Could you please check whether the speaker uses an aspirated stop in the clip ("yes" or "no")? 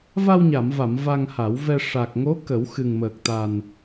no